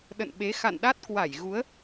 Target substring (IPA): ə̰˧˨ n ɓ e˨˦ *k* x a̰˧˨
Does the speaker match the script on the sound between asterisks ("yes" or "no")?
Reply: no